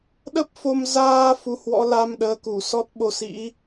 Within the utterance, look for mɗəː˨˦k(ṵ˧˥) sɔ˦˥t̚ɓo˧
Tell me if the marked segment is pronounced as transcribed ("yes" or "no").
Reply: no